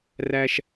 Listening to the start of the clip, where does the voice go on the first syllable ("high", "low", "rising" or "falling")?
high